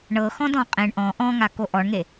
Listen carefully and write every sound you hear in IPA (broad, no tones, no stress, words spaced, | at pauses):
ɳɤxɔ̃dɔ̃ qʼẽɳ ʔɔ̃ ʔɔ̃ŋako ʔɔɳŋe